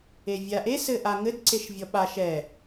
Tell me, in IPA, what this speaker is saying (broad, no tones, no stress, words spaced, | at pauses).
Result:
evʲaʔe sɘʔaŋɘd ǀeʃvʲɔɓa ʃɛ